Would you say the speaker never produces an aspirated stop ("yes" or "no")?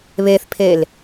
no